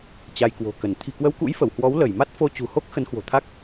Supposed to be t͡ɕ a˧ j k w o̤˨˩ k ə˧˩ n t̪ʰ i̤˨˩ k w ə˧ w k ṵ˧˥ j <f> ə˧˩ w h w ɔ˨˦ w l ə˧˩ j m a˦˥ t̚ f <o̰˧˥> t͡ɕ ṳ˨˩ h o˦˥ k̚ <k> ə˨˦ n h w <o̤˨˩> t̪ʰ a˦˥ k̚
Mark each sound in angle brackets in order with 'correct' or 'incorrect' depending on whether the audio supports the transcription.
correct, incorrect: o˧, incorrect: x, correct

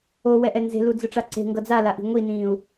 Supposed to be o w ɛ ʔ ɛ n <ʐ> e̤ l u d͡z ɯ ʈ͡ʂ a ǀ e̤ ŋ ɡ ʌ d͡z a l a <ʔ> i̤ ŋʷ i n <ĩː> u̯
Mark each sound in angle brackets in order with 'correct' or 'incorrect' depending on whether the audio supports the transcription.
incorrect: z, correct, correct

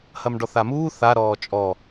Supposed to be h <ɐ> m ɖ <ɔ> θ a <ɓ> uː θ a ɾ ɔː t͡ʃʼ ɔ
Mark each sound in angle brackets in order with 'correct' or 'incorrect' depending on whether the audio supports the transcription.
correct, correct, incorrect: m

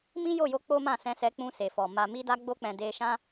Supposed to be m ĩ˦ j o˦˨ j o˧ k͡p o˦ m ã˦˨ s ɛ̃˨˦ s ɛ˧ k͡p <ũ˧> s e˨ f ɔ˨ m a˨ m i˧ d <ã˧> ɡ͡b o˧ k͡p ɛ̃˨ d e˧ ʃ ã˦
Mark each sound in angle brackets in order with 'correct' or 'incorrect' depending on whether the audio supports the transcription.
correct, incorrect: a˧

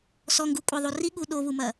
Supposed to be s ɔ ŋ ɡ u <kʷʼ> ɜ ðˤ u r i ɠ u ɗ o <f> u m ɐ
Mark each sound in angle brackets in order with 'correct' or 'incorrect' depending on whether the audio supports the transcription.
correct, incorrect: β

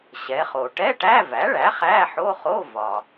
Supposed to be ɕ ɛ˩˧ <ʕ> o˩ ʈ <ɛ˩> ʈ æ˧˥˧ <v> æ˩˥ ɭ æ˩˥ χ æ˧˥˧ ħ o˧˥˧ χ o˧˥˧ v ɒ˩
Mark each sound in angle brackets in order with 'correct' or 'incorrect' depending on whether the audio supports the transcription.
incorrect: χ, incorrect: ɛ˧˥˧, correct

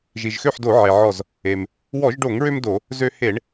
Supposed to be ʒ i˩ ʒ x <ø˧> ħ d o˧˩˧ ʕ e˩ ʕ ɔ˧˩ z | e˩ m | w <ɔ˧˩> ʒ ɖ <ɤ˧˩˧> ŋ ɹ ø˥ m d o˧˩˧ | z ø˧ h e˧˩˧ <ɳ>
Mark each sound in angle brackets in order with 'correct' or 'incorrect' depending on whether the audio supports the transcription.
incorrect: ø˥˨, incorrect: ɔ˧˩˧, incorrect: o˧˩˧, correct

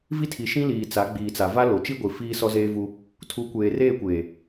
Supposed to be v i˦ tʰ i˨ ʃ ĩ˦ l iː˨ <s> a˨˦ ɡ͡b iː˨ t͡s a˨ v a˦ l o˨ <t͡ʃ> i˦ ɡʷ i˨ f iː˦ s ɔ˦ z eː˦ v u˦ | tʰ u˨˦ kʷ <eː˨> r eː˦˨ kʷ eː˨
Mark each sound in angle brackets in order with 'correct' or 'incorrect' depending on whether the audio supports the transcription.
incorrect: t͡s, correct, correct

